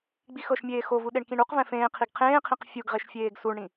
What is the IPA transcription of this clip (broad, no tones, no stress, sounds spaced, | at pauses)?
ɡ͡b i x ɤ ʃ mʲ eː x o v u ɗ e ɳ k ĩ ɳ u q v ɛ̃ f ẽː qʰ i ɡ qʰ ẽː qʰ ĩ q fʲ u ɡ ʁ e ʃ fʲ eː ɡ s u ɳ ɽ ĩ